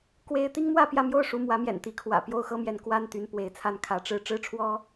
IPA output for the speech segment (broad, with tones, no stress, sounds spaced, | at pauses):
k w e˥ ɪ̯ t̪ i˥ ŋ m w ä˥˧ p j ä˥˧ m j o˥˩ ʊ̯ ʂ u˧˥ m w ä˧˥ m j ɛ̰˨˩ n t̪ i˧˥ kʰ w ä̰˨˩ p j o˥˩ ʊ̯ x ɤ˥ m j ɛ˧˥ n k w a˥ n t̪ y˧˥ n p w e˧˥ ɪ̯ t͡sʰ a˥˩ n kʰ ä˧˥ ʈ͡ʂ ɻ̩˥˧ ʈ͡ʂ ɻ̩˥˩ ʈ͡ʂʰ w ɔ˥